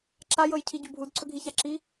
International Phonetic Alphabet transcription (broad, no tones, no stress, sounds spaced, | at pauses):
ǁ a j ɤ j cʰ i ɟ u bʱ u d ǀʰ ɵ ɡʱ i ç a ǁ i